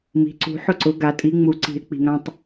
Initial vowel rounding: unrounded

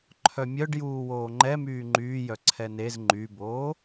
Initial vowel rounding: rounded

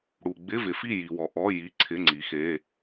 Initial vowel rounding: rounded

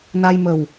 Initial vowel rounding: unrounded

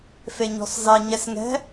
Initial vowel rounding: unrounded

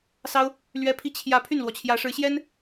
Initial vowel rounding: unrounded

